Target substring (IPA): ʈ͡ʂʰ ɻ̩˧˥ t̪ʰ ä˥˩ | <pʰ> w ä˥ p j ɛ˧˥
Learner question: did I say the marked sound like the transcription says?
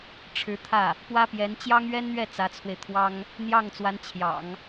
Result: no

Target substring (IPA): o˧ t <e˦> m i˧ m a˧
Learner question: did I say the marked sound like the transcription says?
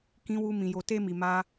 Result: yes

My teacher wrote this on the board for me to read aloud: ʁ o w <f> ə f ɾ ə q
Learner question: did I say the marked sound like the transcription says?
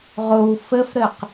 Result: yes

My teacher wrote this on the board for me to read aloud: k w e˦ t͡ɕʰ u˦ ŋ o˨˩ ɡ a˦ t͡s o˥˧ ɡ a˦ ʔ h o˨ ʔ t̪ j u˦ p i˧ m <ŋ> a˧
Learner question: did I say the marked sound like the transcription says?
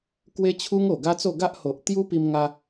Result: yes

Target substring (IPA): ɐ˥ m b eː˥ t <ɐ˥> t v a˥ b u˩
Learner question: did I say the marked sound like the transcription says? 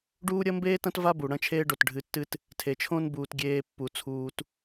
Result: no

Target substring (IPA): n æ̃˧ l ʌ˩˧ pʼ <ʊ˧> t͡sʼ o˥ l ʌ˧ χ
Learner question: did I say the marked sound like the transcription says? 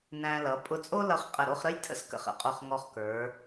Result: yes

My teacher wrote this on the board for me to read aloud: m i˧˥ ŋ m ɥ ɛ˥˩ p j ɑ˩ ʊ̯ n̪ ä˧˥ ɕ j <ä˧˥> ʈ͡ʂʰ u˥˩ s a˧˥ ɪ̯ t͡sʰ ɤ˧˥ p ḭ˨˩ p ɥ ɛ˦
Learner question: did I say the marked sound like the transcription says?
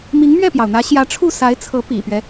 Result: yes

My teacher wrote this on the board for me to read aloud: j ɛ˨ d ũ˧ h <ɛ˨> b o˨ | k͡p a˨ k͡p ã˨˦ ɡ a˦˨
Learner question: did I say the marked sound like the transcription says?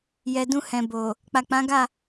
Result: no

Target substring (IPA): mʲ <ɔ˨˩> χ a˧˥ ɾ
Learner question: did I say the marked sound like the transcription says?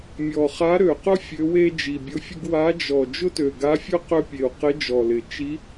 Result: yes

